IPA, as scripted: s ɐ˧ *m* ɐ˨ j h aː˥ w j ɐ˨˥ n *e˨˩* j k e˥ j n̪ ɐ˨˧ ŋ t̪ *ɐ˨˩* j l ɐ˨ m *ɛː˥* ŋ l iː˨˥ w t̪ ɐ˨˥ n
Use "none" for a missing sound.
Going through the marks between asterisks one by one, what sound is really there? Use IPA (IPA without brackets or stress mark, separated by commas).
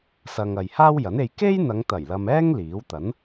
ŋ, e˧, ɐ˨˩, ɛː˥